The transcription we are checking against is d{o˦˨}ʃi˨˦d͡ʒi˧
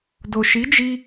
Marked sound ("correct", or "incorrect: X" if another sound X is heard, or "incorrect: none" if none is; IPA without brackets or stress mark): incorrect: o˨